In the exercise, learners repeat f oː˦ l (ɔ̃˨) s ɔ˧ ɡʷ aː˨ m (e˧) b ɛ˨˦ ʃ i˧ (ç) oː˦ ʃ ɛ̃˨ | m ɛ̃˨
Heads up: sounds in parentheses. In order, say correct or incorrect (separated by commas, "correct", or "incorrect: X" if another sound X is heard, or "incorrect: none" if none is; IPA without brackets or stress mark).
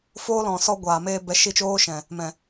correct, incorrect: eː˧, incorrect: t͡ʃ